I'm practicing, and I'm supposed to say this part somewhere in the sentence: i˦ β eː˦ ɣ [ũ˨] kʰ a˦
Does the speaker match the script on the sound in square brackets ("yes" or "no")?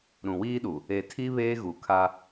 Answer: no